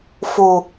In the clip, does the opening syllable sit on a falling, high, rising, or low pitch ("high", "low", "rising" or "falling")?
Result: low